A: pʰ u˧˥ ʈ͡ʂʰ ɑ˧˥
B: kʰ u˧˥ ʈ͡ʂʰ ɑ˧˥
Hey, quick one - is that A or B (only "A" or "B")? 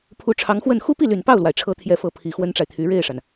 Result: A